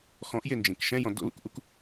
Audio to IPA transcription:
x ɔ̃ ʔ j e n d͡ʒ ẽ k ʃ ɛ̃ j ɔ̃ d o̰ l ṵ k ʔ u k

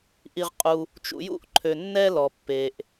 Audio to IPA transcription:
ʔ i˨ ʁ qʼ u˨ | t͡ʃ ṵ˨ j ṵ˦ ʔ ǃʰ ø˩ nː ɛ˥ l ɔ˩ pː e˩ ʔ

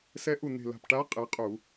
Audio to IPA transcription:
s ɛ˧˥ ʔ u˧˩ n̪ e̤˧˩ l a̤˧˩ p ʈ a˧˥ qʼ e˩˧ qʼ u˧˩˧

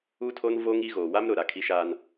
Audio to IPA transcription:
u˦ tʰ o˦ n v oː˦ ŋ i˦ ɣ oː˨ w a˦ m ɾ ʊ˨ ɾ a˨ kʰ i˦ ʃ aː˦ n

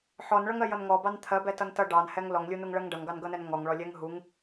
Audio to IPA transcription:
ħ ɔ n ɭ ʌ ŋ ɜ j ʌ n ŋ ɔ b ɑ n t̪ʰ ɜ b ɛ t ʌ n t ʌ ɖ ɑ n h ɛ ŋ l ɔ ŋ lʲ u n u ŋ ɭ ɜ ŋ ɖ ʌ ŋ ɡ ɑ n ɡ ʌ n ɛ n ŋ ɔ ŋ ɭ ɔ lʲ ɛ ŋ ɦ u ŋ

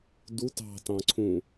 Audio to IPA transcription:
d u t ɑ̤ t ɑ̃ ǀʰ ũ

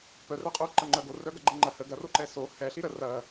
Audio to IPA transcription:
p œ r œ qʼ o ǃ ɐ ŋ͡ǃ œ ɡ o r œ ɡ ɐ ɡ͡ǃ ə ŋ͡ǃ ɐ h ə ɡ ɐ r o ǃ ɛ s o h ɛ ɬ i ɾ ə r ɐ

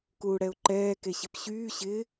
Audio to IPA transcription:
k uː ɽ ɛ ʊ̯ ǃ ɛː k e ɕ ɪ p ɕ yː ɕ ɪː

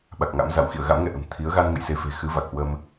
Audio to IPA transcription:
ɓ a˨˩ k̚ ŋ a̰˧˥ m z a̰˧˨ w x ḭ˧˨ ə̯ ɣ a̰˧˥ m ŋ ɛ̰˧˨ ʔ ə̤˨˩ m t̪ʰ i˨˦ ə̯ ɣ a˧ n ŋ ə̰˧˨ j s e˨˦ f e̤˨˩ x ɨ˨˦ v a˨˩ k̚ h w ə˧ m

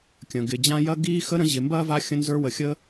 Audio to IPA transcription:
kʲ ə̃˩ ɡ ɪ˩ d͡ʑ ã˦ j ɐ˥ ɡ iː˥ x ə˥ ɾ ə̃˦ ʑ ɪ˨ m b ɐː˥ v a˦ xʲ ə̃˦ n z ə˞˦ w ə˨ xʲ əː˦

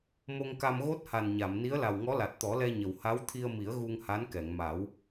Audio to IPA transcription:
m o˧ ŋ k a˧ m ɣ o˦˥ t̚ h a˨˩ n ɲ a˨˩˨ m n i˧˥ ə̯ l a˨˩ w ŋ ɔ˧˥ l a˨˩ t̚ t̪ ɔ˨˩˦ l ɛ˧ ɲ ə˨˩ w h a˧˥ w t̪ʰ i˧ ə̯ m i˨˩˦ ə̯ ɣ u˧ ŋ h a˧˥ n k ɛ˨˩˨ ŋ m a˨˩˦ w

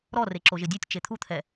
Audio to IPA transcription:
ɾ ɔ r e ǁ o ʒ ɪ dʲ ɛ tʲ t͡ʃ e t̪ʰ u t̪ʰ ɛ

